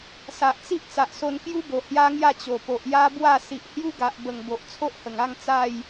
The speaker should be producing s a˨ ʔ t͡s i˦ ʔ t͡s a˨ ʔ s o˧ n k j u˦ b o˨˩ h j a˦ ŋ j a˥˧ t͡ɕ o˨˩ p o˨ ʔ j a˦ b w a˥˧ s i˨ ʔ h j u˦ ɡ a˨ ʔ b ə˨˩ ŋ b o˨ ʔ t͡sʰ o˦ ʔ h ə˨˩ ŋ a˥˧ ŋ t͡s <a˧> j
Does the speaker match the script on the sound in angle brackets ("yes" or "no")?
no